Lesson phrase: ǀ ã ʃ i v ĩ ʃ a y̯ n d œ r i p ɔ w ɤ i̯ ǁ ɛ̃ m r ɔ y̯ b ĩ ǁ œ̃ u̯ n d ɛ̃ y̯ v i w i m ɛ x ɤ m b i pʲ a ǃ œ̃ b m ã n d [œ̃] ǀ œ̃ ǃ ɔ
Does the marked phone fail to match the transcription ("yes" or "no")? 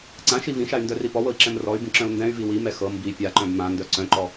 yes